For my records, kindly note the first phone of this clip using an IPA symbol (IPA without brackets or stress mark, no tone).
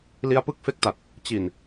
l